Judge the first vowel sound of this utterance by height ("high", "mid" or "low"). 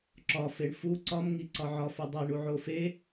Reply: low